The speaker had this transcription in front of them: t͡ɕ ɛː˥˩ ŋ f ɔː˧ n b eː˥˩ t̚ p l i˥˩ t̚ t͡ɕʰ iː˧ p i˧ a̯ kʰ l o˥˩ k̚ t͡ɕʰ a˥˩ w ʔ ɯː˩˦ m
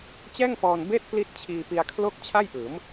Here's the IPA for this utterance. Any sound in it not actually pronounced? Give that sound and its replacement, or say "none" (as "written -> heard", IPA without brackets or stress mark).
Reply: w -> j